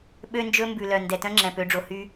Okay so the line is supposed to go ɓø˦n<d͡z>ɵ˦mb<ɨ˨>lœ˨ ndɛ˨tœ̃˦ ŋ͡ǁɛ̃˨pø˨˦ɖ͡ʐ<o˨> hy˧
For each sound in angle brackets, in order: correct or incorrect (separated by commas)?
incorrect, incorrect, correct